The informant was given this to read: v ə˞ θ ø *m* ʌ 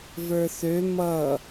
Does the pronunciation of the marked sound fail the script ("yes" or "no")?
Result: no